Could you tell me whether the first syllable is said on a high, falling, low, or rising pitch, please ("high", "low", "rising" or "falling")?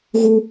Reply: high